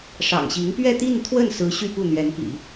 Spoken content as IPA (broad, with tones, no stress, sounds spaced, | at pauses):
ʂ ɑ̰˨˩ ŋ ɕ i˧˥ ŋ p ɥ ɛ˥˧ t̪ i˥˧ n t̪ʰ w ə˥˩ n s ɹ̩˧˥ ɕ y˥˧ p u˥˩ n̪ ɥ ɛ˧˥ n p ḭ˨˩˦